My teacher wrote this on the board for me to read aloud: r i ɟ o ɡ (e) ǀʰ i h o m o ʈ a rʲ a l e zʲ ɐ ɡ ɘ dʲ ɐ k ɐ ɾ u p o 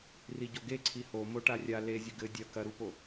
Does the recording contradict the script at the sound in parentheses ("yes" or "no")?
no